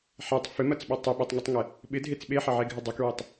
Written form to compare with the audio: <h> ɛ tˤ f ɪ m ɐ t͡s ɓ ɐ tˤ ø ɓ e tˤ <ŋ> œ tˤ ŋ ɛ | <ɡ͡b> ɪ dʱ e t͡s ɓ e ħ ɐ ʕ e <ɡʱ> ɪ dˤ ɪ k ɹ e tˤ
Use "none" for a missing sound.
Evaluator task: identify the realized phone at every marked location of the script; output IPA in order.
ħ, ŋ, ɓ, ɡʱ

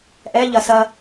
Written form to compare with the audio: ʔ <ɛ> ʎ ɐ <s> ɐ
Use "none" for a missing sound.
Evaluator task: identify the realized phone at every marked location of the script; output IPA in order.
ɛ, s

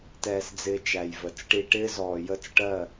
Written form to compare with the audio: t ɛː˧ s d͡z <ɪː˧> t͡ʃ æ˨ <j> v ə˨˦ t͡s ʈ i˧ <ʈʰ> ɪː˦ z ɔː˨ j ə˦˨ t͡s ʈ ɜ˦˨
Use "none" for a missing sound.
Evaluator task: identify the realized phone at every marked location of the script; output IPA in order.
ɪː˧, j, ʈ

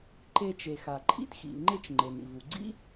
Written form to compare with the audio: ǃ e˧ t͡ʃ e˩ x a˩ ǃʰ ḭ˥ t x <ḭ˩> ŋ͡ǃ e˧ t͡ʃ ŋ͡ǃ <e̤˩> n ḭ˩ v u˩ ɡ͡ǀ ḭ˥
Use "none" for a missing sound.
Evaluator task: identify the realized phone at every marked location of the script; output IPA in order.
ḭ˩, e˩

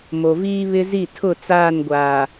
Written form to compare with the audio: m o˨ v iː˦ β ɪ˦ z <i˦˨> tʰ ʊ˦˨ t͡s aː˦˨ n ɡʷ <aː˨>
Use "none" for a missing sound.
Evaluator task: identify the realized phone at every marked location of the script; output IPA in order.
i˦˨, aː˨

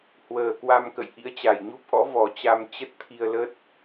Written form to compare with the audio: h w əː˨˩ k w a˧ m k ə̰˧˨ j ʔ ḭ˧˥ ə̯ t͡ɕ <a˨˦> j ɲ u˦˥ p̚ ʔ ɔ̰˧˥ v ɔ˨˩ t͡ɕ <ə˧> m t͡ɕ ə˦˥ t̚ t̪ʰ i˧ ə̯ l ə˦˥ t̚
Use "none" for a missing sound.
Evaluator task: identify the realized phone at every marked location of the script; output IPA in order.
a˨˩, a˧

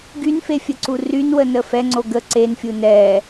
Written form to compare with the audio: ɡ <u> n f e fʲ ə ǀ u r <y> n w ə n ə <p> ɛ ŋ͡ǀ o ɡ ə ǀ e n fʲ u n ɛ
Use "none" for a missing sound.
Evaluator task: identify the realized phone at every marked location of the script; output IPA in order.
y, y, f

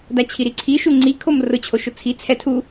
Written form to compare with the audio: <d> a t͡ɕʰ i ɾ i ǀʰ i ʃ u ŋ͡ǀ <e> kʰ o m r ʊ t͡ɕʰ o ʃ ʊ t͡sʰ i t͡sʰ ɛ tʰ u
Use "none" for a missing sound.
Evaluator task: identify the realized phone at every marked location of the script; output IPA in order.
d, i

